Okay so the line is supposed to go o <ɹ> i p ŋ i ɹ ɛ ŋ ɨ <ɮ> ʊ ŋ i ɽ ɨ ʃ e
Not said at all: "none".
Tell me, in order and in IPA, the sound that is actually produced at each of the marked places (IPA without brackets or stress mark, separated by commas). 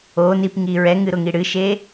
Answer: n, ɾ